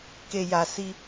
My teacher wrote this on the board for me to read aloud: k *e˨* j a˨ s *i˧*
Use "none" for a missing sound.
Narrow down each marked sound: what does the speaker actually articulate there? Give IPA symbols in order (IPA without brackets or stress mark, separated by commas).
e˨, i˧